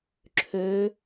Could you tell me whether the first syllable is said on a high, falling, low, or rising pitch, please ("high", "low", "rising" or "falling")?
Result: rising